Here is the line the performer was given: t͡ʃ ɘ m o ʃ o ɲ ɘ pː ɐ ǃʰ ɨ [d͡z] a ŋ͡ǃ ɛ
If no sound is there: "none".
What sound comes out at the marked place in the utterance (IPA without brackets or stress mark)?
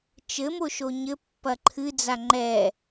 d͡z